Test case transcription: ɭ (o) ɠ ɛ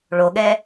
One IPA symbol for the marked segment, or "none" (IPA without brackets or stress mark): o